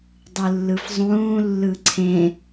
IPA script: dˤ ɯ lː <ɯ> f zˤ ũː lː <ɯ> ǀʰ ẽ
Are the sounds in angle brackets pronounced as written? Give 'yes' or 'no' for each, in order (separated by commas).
yes, yes